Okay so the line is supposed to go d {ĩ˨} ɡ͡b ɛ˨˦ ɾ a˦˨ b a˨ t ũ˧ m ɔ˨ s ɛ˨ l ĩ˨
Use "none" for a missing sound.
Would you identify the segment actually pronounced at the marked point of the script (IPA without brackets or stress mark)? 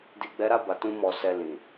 i˨